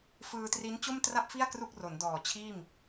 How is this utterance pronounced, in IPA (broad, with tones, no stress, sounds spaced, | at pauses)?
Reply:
f ɯː˧ t r i˦˥ n t͡ɕ o˥˩ m t r a˥˩ p̚ f i˥˩ a̯ k r u˥˩ k̚ r o˩˦ n d ɔː˨˩ t͡ɕʰ iː˥˩ m